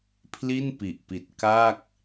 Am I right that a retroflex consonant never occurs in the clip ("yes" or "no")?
yes